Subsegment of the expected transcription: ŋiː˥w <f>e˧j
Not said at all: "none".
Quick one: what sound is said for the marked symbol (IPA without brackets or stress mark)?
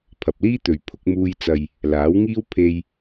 pʰ